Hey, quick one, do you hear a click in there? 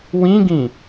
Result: no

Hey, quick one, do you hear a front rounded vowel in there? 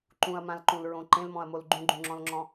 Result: no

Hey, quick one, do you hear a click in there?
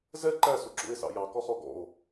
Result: yes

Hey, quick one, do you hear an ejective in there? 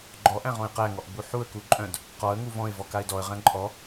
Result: yes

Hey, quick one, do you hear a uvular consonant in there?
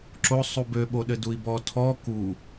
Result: no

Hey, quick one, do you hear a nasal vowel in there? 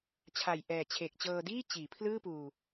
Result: no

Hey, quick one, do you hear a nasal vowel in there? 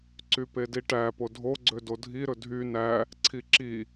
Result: no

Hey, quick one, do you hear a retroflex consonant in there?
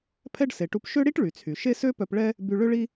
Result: yes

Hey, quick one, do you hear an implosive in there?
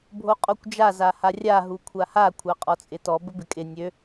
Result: no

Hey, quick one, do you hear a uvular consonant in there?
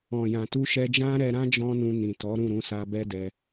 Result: no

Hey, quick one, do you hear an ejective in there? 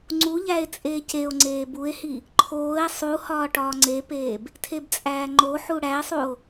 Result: yes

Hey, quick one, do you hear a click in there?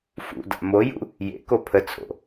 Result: no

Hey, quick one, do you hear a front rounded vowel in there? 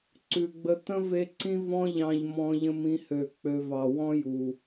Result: yes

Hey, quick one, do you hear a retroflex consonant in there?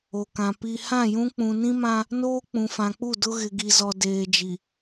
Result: no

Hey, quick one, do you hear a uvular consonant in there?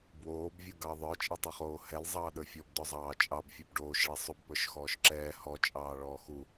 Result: yes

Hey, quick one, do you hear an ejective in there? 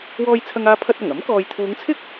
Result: no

